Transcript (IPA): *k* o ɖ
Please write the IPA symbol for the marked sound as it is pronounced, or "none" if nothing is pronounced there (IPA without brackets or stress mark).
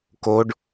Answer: k